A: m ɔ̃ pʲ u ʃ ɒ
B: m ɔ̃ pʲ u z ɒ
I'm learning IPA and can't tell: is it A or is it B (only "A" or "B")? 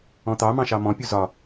B